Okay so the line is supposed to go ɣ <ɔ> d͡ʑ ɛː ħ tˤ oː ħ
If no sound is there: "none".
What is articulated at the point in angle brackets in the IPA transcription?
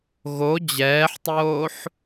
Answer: o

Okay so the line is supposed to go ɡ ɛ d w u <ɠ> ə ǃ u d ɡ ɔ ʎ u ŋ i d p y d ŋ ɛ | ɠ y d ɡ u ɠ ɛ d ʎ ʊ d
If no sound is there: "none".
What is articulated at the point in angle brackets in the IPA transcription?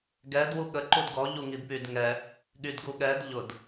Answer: ɠ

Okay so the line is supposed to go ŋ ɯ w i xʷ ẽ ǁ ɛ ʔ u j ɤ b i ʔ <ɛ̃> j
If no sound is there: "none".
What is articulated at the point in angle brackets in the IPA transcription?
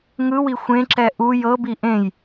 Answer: ẽ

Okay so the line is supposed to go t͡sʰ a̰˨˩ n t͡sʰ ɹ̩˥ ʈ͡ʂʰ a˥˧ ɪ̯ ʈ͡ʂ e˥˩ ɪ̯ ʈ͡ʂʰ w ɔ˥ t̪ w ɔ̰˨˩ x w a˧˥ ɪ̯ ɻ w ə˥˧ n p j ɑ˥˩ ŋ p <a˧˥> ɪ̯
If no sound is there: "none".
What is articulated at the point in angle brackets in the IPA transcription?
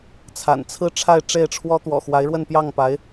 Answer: a˧˥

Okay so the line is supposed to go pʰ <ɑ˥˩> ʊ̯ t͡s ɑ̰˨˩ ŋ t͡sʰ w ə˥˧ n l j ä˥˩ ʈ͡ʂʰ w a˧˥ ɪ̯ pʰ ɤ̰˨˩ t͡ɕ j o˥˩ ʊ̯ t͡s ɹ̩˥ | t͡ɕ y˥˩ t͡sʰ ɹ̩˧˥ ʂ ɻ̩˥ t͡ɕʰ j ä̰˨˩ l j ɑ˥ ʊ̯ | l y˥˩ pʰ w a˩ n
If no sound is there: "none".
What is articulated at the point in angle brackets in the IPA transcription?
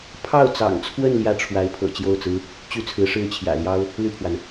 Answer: ɑ˥˩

